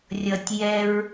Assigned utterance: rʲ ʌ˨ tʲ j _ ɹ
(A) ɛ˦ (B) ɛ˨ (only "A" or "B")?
A